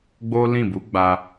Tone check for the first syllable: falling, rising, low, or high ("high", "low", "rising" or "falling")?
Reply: high